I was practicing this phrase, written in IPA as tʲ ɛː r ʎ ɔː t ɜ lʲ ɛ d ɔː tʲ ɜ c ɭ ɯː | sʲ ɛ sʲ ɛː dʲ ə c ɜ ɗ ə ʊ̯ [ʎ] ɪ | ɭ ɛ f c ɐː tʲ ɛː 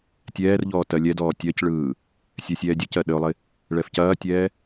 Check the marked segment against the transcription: incorrect: lˠ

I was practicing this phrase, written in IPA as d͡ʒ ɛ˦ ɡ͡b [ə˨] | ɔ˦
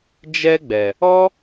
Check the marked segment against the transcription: incorrect: ɛ˨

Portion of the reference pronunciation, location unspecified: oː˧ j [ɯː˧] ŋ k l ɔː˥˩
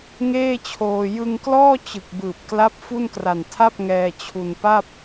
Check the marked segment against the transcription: incorrect: ɯ˧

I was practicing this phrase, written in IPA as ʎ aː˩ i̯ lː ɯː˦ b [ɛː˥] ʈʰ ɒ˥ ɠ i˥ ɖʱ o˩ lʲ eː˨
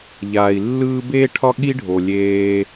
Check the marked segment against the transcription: incorrect: eː˥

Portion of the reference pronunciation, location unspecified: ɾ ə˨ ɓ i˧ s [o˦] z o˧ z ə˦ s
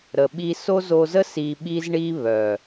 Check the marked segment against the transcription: correct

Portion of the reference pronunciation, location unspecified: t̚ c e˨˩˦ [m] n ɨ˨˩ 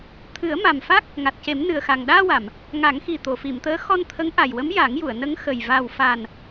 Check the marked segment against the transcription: correct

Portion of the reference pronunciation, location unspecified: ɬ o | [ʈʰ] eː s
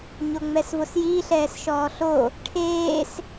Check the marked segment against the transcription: correct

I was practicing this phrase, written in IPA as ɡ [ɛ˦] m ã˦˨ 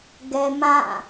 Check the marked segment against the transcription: correct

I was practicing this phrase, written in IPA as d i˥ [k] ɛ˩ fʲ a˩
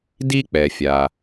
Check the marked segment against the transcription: incorrect: k͡p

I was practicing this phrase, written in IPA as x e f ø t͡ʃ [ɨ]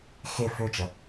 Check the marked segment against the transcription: incorrect: ə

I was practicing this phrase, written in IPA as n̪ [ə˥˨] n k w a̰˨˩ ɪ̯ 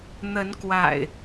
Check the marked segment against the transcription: incorrect: ə˨˦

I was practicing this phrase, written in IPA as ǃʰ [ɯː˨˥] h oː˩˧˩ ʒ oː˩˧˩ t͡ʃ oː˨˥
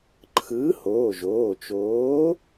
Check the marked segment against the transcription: correct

